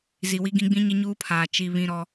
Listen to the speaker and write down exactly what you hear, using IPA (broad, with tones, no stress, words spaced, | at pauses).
zi˨wi˦ɡĩ˦ ɡ͡bĩ˦ɲɪ˦ɲuː˦pʰaː˨ t͡ʃi˦ βĩ˦ɾɔ˦